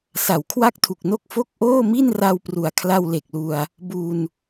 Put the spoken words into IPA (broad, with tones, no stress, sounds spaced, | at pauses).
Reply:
s a˩˦ w kʰ w a˥˩ k̚ tʰ u˨˩ k̚ n o˥˩ k̚ f o˥˩ k̚ ʔ oː˥˩ m i˥˩ n r a˧ w p r u˩˦ a̯ kʰ l a˧ w l e˨˩ k̚ l u˧ a̯ | b u˧ n